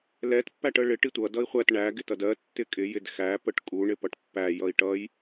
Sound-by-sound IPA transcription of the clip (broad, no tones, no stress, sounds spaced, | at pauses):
l ɛ t pː æ ʈ ə ɭ ɪ ʈ i tʷ ʌ d ʌ i̯ χʷ æ t ɳ æ ɡ ɪ t ʌ d ɜ tː ɪ kʼ ɪ j ɪ d x æ p ə ʈ kʼ u ɳ ɪ p ʌ ʈ pː æ j ʌ i̯ ʈ ʌ j